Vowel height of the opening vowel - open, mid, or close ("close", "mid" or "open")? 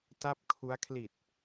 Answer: open